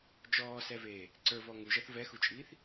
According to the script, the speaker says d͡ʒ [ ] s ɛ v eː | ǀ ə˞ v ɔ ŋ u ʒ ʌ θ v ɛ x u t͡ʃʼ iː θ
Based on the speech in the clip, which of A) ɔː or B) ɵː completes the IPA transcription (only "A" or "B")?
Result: A